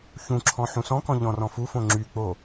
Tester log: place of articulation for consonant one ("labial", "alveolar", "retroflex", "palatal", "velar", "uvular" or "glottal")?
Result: palatal